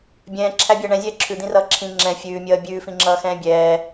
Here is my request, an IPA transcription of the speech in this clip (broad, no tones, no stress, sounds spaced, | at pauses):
bʲ ɛ̃ː ǁʰ æ bʲ æ ɳ ɛ̃ zʲ ɛː ǁʰ ʉ d̪ ĩ r ʌː ǁʰ ĩ ŋ͡ǁ ɛ̃ fʲ ʉː mʲ ʌː bʲ ʉː f ĩ ŋ͡ǁ ʌː x ɛ̃ː bʲ ɛː